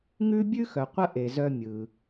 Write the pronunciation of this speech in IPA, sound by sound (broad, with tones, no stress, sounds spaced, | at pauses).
ŋ ʉ˥ bʲ ʉ˥ x œ˩ qʷ ə˥ ʔ e˩ z œ˧ mʲ ɯ˩